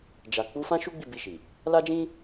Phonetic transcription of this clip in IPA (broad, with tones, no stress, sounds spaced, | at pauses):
d͡ʒ a˨ k͡p u˨˦ f ã˦ ʃ u˦ ɡ͡b i˦˨ b i˧ ʃ i˨ | l a˦ d͡ʒ ĩ˦